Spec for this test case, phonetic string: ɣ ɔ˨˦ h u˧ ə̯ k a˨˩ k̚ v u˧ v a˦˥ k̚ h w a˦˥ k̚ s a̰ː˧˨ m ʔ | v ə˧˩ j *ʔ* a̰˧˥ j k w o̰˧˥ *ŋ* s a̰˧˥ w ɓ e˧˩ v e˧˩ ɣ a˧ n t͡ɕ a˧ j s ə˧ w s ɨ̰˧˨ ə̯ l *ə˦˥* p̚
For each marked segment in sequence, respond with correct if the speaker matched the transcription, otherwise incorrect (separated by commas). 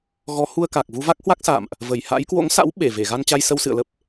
incorrect, correct, correct